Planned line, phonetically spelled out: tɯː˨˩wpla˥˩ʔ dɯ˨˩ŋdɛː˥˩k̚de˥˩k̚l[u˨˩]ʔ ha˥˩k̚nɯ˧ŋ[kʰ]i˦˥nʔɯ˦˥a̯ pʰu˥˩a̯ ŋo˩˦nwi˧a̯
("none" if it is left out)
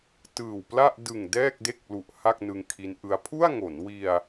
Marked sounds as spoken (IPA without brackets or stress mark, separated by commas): u˨˩, kʰ